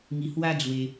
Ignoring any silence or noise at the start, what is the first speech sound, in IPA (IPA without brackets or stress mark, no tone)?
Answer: ŋ